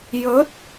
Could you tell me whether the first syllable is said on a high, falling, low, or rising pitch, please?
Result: rising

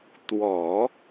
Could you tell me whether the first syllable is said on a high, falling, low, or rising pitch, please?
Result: low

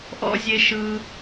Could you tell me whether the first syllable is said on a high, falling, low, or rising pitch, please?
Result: high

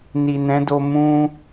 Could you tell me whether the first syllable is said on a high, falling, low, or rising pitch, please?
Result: low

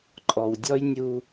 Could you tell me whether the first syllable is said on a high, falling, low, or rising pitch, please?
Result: low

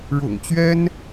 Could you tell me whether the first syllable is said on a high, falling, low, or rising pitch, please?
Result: low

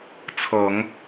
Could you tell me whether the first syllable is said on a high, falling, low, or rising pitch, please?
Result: low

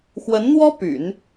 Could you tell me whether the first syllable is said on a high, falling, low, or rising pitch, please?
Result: rising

